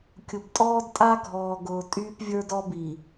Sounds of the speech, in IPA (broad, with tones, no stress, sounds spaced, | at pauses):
kʲ ʊ˨ b tʼ ɔː˦ d tʼ a˦ ɡʱ ɔː˨ ɡ ʊː˨ tʼ yː˦ p vʲ ə˞˦ d ɔ˦ b i˨